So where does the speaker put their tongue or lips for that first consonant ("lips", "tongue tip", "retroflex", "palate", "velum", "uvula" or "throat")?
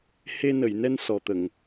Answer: throat